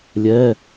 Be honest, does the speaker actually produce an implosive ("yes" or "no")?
no